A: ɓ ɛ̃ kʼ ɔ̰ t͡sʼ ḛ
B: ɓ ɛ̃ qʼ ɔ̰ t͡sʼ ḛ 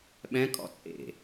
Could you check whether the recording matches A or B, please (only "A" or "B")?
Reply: A